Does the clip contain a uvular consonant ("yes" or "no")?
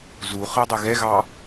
yes